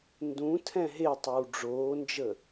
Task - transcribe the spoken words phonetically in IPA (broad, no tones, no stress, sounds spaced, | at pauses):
n d ũ tʰ ɛ̃ ɦ e tˤ əː w ɖ͡ʐ oː n d͡ʒ əː